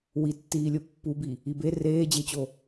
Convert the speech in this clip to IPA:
witːiːlʲo pːubi | ibe reːd͡ʑet͡ɕo

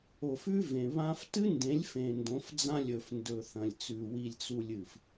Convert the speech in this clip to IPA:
o˨fʉ˦ vẽ˨βã˦f tɨ˦ndẽ˨˦lʲ fẽ˨ndõ˨˦fd͡zã˦ lʲɵ˨fndɵ˨θɐ̃˨lʲt͡sʉ˨ wi˨lʲt͡su˨lʲɨ˨f

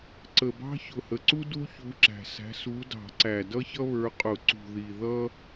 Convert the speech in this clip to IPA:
ǀə˨˩bɑ̤˥ çʊ˨˩hə˨˩ǀu˥ du˥çu˨˦ǁæ̤˨˩ sæ̤˨˦su˨˦dɑ̤˧˩˧ǀæ˨˩ dʌ˥çʌ˥βə˞˨˦qʼʊ˧˩˧ ǀṳ˨˩ ði˨˩ ðʌ˥

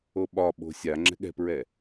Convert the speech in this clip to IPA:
oɓɒɓo̤ sʲa ŋ͡ǁɛ̤ɠɛ̤pɹɛ

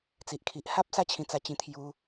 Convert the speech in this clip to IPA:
t͡si˨ʔkʰi˨ʔha˦p̚ sa˥˧ t͡ɕʰĩ˧t͡sa˧t͡ɕĩ˧ t̪ʰju˧

